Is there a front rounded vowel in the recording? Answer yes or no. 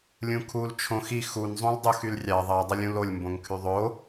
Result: yes